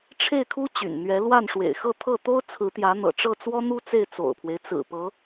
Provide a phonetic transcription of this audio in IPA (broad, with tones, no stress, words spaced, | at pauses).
ʈ͡ʂʰe˥˩ɪ̯kʰu˥ t͡ɕy̰˨˩nn̪ɥɛ˧˥ lwa˥˩nʂwḛ˨˩ɪ̯xɤ˥˧t̪ʰɤ˥˩ t̪o˥ʊ̯t͡sʰɹ̩˧˥t̪jä˧˥n̪ɤ̰˨˩ ʈ͡ʂɤ˥˩t͡swɔ˥n̪u˥ t͡se˥˩ɪ̯t͡so̰˨˩ʊ̯pʰwe˦ɪ̯ t͡sɹ̩˨˩pɤ˧˥